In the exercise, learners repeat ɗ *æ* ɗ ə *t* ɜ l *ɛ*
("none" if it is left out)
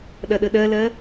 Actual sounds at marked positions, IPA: ɐ, ɗ, ɜ

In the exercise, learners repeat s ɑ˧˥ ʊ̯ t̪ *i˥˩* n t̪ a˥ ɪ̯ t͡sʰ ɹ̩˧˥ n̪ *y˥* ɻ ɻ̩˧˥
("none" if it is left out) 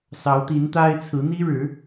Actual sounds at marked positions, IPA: i˧˥, i˥

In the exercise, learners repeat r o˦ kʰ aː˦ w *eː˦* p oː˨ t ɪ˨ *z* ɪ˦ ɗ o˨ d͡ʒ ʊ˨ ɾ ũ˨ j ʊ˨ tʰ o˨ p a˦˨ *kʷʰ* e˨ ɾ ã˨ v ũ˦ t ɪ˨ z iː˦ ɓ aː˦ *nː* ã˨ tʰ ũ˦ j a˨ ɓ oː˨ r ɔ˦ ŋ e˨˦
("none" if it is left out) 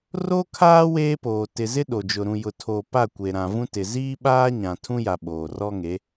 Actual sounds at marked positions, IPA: eː˦, z, kʷ, ɲ

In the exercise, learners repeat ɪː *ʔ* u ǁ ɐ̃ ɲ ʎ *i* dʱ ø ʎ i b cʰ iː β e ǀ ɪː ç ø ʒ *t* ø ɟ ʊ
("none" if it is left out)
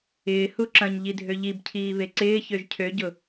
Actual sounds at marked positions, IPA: h, i, cʰ

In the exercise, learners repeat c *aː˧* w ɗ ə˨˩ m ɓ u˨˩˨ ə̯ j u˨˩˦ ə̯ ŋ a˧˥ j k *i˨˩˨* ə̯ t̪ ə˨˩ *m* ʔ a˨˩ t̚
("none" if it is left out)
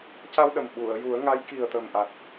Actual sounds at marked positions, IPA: a˧, i˨˩, m

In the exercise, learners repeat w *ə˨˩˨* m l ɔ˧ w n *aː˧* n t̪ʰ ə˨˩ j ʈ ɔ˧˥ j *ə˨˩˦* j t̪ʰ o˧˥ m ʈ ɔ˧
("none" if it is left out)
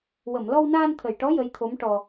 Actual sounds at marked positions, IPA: ə˨˩˨, aː˧, ə˧˥

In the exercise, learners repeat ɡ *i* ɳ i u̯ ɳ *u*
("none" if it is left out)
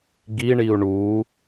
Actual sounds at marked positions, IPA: i, u

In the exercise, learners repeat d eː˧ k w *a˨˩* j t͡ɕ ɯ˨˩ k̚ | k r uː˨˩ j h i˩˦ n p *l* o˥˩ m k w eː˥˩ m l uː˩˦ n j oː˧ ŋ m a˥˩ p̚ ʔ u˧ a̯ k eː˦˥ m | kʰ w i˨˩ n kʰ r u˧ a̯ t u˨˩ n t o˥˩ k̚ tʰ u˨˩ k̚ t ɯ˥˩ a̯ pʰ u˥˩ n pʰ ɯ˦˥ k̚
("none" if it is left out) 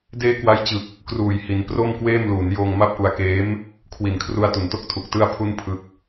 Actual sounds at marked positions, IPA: a˦˥, r

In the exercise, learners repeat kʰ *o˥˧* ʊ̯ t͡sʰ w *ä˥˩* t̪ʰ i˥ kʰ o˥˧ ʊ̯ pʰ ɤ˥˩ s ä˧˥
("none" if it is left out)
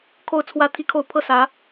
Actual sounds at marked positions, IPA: o˥˧, ä˥˩

